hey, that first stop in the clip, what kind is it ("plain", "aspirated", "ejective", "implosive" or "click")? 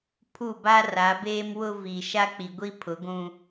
aspirated